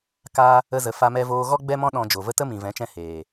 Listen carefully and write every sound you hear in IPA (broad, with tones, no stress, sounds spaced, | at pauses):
k a˧ | ə˧ z ə˨ f a˧ m ɛ˧ v oː˧ ɣ ɔ˦ ɡ͡b ɛ˦ m ɔ̃˦ ɗ ɔ̃˧ d͡ʒ o˨ v ə˦ t ə˦ m ĩ˨ v ɛ̃˨˦ t͡ʃ ɛ̃˧ h eː˨